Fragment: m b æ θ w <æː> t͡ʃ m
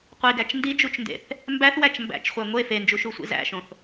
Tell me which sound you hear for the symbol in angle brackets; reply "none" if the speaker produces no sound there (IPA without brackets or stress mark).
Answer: æ